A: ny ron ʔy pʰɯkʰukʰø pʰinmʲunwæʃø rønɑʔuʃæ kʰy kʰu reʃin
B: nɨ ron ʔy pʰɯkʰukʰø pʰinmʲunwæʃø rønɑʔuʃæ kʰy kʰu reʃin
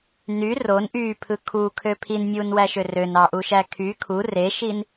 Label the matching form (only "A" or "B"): A